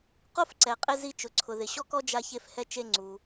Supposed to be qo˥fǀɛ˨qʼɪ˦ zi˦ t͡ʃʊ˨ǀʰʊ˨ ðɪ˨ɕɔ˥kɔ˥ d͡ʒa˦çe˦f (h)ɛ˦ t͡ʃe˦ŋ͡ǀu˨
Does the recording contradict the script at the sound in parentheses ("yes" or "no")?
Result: no